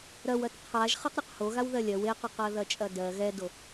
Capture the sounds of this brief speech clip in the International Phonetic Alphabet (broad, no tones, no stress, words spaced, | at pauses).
ɾɐwɐt qʰaʒ χɜqɾʲɐqhoɣaw ðɜlʲɜw eqɐqɜ ðɐt͡ʃʼɐdɜ ɣɛdo